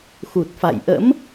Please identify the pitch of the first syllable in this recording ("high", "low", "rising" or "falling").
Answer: low